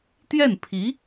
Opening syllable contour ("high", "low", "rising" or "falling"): falling